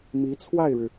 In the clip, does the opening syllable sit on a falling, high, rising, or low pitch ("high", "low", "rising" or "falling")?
rising